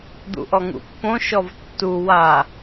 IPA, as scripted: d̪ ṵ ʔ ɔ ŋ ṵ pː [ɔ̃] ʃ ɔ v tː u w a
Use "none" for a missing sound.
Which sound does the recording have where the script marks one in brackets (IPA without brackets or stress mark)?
õ